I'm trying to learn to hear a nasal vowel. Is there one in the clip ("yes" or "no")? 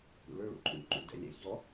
no